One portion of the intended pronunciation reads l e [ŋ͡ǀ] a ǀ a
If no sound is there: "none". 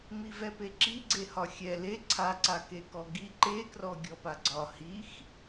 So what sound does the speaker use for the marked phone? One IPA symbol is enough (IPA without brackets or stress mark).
ǀʰ